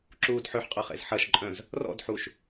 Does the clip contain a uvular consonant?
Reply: yes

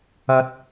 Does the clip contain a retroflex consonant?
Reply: no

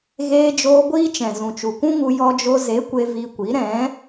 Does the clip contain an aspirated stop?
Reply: no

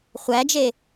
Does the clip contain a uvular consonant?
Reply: yes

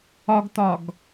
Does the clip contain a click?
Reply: no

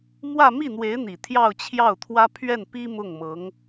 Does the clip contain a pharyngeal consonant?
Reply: no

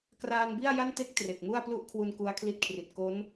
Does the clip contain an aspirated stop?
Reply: yes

